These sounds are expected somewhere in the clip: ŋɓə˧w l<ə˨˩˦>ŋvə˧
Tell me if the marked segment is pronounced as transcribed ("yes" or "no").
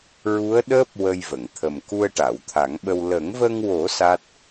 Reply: yes